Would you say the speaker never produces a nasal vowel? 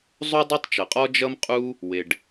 yes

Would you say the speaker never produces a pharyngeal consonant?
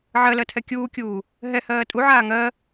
no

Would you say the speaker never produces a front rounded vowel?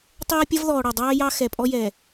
yes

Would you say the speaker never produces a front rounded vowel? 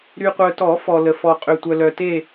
no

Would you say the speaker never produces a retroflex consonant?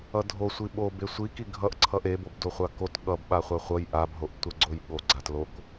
yes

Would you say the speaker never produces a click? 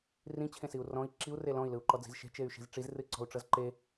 no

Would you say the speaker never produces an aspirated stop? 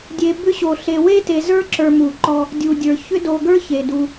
yes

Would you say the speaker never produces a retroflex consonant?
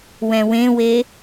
yes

